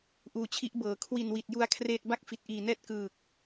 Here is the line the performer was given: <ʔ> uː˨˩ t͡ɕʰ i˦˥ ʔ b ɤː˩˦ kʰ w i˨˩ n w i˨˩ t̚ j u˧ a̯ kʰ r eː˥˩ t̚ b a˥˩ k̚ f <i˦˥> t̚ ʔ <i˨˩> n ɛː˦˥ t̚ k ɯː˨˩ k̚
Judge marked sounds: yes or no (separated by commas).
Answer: yes, no, no